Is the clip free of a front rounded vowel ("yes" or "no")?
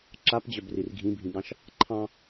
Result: no